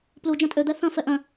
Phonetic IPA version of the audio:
p l u d͡ʒ ɐ̃ tʼ ø d̪ ɛ θ ɐ̃ f ɛ ʔ œ̃

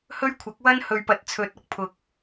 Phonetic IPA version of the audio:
h ɵ˥ ɥ kʷʰ ɐ˨˥ k̚ w ɐ˥ n h ɵ˨ ɥ p ɐ˨ t̚ t͡sʰ ɵ˨˥ t̚ ɐ˨˥ k̚ pʰ ʊ˨˥ k̚

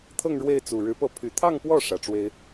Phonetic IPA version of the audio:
t̪ʰ ɤ˥˧ ŋ ɻ w e˥˩ ɪ̯ t͡s u˨˩ ɻ ɻ̩˧˥ p ɤ˥˩ pʰ y˨˩ t̪ʰ ɑ˥˧ ŋ p w ɔ˥˩ ʂ ä˨˩ ʈ͡ʂ w e˥ ɪ̯

